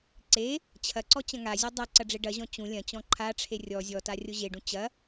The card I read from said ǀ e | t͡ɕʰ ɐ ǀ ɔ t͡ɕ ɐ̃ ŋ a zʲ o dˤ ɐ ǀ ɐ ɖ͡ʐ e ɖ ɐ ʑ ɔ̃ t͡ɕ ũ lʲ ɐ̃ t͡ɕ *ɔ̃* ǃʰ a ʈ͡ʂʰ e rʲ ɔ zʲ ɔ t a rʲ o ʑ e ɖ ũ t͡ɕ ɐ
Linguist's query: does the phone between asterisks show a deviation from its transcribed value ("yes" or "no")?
no